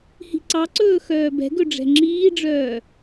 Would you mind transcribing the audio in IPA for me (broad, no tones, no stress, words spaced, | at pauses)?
hi̤ǀɑǀɵː xœːbɛ̤ɡɵ ɖ͡ʐɛ̤ŋ͡ǁiːɖ͡ʐœː